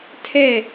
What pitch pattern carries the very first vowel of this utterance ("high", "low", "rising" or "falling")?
falling